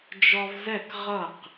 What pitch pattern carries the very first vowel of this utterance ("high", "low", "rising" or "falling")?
high